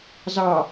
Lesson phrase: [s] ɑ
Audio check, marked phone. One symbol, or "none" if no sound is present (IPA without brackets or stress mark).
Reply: z